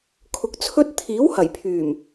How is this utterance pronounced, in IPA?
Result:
kʰʊ˧k̚t͡sʰɵ˥t̚ t̪ʰiː˨˥whɐ˨˩jpʰyː˨˩m

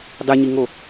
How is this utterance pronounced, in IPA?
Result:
dˤiɲiŋo

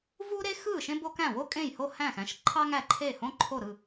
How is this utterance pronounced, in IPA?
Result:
vu˥ɾe˥xɯ˥˩ ʃẽ˥bo˥kæ̃˥˩ wo˥kʼẽ˥˩j ho˥˩hæ̃˥˩xæ̃˥˩ʃǃʰɑ˥ ŋæ˥˩ǃʰe˥˩hõ˥ ǃʰo˥˩ɾɯ˥˩

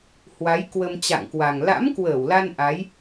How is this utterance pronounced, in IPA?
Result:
hwa˨˦j kwə˧m t͡ɕa̰˧˨ŋkwa˨˩ŋ la̰˧˥mkwəː˧˩wla˧n ʔa˨˦j

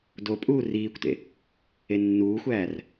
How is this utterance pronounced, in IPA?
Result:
do pʼuːriːkʷtḛ | enːuːxʷæːr

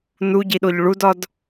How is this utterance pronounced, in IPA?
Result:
nuɟiɗoʎ ɭudɒd

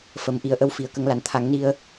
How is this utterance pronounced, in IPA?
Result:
fə˨˩˦mʔi˨˩˦ə̯ʔə˧w fi˨˩˦ə̯kə˨˩˦ŋla˨˩n t̪ʰa˨˩˦ŋni˧ə̯

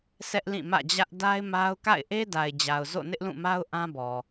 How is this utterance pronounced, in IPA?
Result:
sʰɛ˦ʔlĩ˦˨mä̰˦˨d͡ʑä˦ʔ da˦ɪ̯ma˦ʊ̯ ka̰˦˨ɪ̯ʔe˦da˨ɪ̯d͡ʑa˨ʊ̯ zo̰˦˨nɪ˦ʔlũ˦˨ma˦ʊ̯ ʔã˦bɔ˨

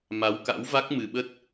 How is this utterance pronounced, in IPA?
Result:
ma˨˦wka̰˧˥wva˦˥k̚ mɨ˨˩ɓə˦˥t̚

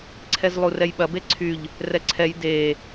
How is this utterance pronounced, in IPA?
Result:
ǀʰɛzlˠurɛjɓɐ beǀʰyʎ | rɛǀʰɛj de

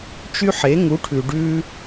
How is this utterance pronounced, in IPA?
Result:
t͡ʃy˦ħe˨˦ ŋu˨˦ʈʰʉ˨ ɖʉ˦

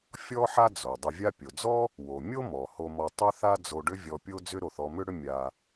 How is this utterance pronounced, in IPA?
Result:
fʲɔ˥ħa˥ d͡zo˩dˤʏ˧ vʲa˧pʲo˩d͡zɔ˥ | wo˩ mʲo˥mɔ˩ ho˧mɔ˧ tˤʏ˥θa˥ d͡zo˧ɖʏ˥vʲɔ˧ pʲo˥d͡zʏ˥ɾo˧θ ɔ˧mʏ˥ɽʏ˥ mʲa˧

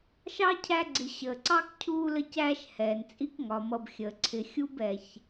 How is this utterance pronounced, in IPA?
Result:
ʃɑ˥cʰæ˦ɡ͡ǀɪ˨ ɕəː˩ǀɑ˥k cʰuː˦lə˦cæː˦ʃhɛː˩n t͡sʼi˦kŋɒ˩mʌ˨b xʲəː˩ǀʰɪ˨ xʲu˥bɛ˨ç

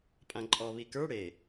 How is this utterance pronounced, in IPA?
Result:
pʼãǃʼɔ βikə˞ ɽe

